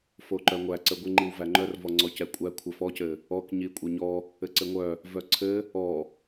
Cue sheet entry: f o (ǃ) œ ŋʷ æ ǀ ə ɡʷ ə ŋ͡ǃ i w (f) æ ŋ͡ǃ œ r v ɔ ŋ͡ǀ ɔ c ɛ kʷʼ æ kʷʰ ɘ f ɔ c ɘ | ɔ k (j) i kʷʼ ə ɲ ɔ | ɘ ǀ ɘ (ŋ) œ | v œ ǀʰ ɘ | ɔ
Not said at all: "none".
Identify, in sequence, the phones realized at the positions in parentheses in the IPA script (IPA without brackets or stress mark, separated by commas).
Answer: ǃ, v, ɲ, ŋʷ